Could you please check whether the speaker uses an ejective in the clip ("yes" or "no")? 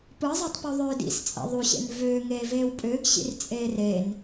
yes